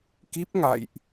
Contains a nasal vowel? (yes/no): no